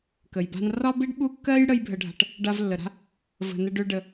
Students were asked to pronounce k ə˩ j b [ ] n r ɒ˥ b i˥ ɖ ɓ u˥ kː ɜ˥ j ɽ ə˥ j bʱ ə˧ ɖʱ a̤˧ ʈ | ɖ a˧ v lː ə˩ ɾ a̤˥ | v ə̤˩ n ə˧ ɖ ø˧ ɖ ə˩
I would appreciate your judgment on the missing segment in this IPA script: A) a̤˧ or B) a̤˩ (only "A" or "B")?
A